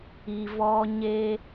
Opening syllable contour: low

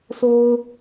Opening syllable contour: high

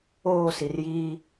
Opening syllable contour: falling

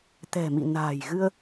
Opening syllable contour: low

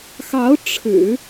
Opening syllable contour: rising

